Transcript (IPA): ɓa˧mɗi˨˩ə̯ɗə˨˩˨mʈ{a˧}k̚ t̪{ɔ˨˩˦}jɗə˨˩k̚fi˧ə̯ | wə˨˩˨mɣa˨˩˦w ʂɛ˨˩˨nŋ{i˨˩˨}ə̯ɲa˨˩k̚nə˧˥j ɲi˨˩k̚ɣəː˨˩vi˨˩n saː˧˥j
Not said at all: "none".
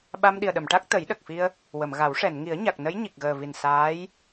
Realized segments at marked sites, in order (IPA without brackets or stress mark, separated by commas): a˦˥, ə˨˩˦, i˨˩˦